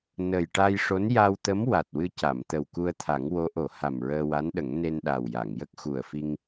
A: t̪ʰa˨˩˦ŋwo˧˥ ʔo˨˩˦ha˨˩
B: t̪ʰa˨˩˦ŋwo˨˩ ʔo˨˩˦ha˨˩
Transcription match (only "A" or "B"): A